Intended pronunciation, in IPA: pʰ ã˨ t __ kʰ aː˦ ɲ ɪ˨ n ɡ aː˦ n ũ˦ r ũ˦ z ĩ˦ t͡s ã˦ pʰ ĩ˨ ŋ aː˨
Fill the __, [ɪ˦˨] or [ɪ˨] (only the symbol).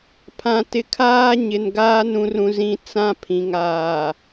ɪ˨